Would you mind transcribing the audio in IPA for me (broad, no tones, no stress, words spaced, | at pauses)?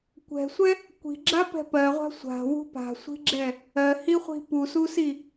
kʷɛ̤sʷɛ | kʷi̤ɡ͡ǁapɛ̤ pɜʁʷa̤ sʷa̤wṳ pa̤sʷi̤ɡ͡ǁɛ | ɜhiχʷi̤ pususi